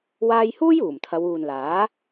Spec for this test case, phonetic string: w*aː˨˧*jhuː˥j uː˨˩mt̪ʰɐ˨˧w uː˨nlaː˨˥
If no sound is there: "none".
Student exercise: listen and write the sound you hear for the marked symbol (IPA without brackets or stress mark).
aː˧